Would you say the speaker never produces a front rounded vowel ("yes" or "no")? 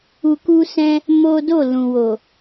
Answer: yes